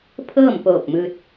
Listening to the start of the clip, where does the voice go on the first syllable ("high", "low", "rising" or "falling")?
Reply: falling